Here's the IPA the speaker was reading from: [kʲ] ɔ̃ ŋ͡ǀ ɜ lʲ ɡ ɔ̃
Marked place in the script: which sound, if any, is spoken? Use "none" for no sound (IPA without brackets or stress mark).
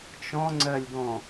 t͡ʃ